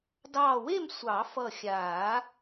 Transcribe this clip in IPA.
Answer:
dɑː˧˩we˥˨m sʷɑ˨˩˦fʌ˧˩xʲaː˨˩˦

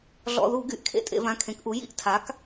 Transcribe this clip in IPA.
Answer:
ɮɔ̰˩˧˩ðu˧˩˧ ɡy˩˧˩ʔkʰḛ˥˧tʼḛ˧˩˧vã˩˧˩ kʰẽ˩˥kʔu˩˥ jḭ˥˧ʔ tʰa˩˥k

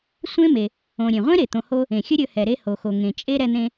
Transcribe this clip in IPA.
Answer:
sʷẽ˥ me˩ | õ˩ ɾʲẽ˩ʁʷẽ˥ɾe˩ t̪õ˩ho˧ | ẽ˩xʲɵ˥ɾʲɵ˧hɛ˩ ɾe˧ho˩xo˩ ŋẽ˩t͡ʃʼe˥ ɾɛ˧n̪ẽ˧

